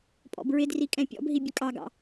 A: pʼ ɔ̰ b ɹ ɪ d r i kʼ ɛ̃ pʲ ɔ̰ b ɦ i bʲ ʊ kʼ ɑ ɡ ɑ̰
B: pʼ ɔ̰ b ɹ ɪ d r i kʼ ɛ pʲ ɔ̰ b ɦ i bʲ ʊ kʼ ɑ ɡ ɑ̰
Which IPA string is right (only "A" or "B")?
A